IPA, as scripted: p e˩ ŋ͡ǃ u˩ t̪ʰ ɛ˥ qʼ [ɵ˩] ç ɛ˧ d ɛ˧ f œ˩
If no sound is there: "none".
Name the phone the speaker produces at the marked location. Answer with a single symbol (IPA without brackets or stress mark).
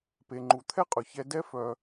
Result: ɵ˩